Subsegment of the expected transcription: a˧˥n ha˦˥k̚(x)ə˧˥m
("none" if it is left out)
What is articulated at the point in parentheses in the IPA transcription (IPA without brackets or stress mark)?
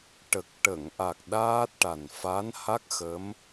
x